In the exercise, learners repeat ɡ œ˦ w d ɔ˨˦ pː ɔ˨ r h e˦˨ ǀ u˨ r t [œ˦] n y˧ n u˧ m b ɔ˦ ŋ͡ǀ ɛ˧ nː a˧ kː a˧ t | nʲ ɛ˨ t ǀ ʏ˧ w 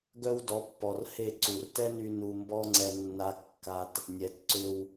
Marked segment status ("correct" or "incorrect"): incorrect